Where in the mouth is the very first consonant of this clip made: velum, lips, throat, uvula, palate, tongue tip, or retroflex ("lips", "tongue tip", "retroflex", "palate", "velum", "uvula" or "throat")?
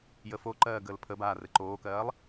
palate